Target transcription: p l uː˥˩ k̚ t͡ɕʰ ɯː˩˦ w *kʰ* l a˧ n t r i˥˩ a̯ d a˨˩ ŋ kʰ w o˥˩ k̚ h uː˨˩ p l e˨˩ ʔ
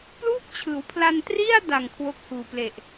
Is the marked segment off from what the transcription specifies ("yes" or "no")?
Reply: yes